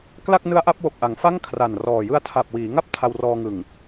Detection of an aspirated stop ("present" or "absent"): present